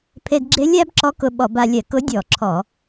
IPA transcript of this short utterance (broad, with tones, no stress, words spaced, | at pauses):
pʰe˧dɡ͡ǁe˧˥lʲæ˧˥b ǁɔ˧˥k ʊ˧ɓɔ˧˩˧ba˧lʲɛ˧˩˧k ʊ˧˥dʲɔ˧˩˧ ǁʰɔ˧˩˧